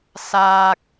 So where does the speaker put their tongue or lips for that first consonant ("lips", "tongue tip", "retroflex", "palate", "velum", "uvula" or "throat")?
tongue tip